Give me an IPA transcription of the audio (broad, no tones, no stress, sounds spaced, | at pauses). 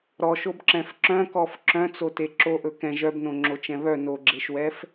ɾ ɔ ʃ o b ǁ ɛ̃ f ǁ œ̃ k ɔ f ǁ œ̃ t͡s o t e ǁ o ʔ ɵ k ɛ̃ ʒ œ b n õ ŋ͡ǁ o t͡ʃ ɛ̃ β œ n o ɡ͡ǁ e ʃ w ɛ f